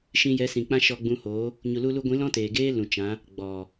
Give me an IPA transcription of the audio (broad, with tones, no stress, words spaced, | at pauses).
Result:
ʃĩ˧jɛ˨˦sĩ˨ k͡pã˦ʃɔ˧ɡ͡bũ˧hoː˨˦ | ɲu˨lu˧lu˧ɡʷĩ˨˦ lɔ̃˦teː˨ɡeː˦ lũ˨t͡ʃã˨˦ | ɡ͡bɔ˨